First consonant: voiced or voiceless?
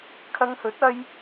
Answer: voiceless